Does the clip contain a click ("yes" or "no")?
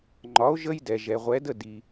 yes